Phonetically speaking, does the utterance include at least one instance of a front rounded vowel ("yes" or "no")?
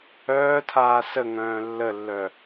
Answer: yes